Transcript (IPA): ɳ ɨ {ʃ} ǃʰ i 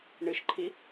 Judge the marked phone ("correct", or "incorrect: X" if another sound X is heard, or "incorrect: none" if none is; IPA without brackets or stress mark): correct